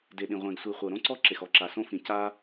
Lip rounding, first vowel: unrounded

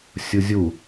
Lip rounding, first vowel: rounded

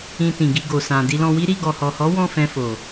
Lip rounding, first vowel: unrounded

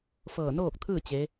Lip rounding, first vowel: unrounded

